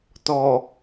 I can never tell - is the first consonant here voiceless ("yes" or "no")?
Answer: yes